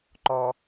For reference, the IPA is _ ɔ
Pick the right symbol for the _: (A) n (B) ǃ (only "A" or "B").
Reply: B